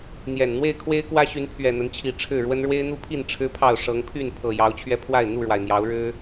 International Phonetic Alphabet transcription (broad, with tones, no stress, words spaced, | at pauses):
n̪jɛ˨˩n n̪we˥˨ɪ̯kʰwe˦ɪ̯kwä˦ɕy˨˦n pʰɥɛ˨˩n̪ə˨˦nt͡ɕʰi˨˩ ʈ͡ʂʰɻ̩˥˨ɻwə˦n ɻwe˦ɪ̯n̪u˦pʰi˥˨n ʈ͡ʂʰɻ̩˦pʰɑ˥˨ʊ̯ ʂɤ˨˦ŋpʰy˥˨n pʰɤ˨˩ jɑ˨˦ʊ̯t͡ɕʰɥɛ˧pʰwa˥˨ɪ̯ n̪u˥˨ɻwa˩ɪ̯n̪jɑ˨˦ʊ̯ɻɻ̩˦